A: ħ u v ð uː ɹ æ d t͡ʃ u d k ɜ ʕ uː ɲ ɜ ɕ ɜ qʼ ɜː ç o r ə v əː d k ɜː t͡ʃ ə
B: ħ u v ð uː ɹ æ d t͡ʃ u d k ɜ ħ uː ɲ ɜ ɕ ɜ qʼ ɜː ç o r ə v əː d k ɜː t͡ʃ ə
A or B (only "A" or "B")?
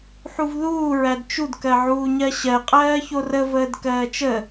A